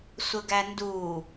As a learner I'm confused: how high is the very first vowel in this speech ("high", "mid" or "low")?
mid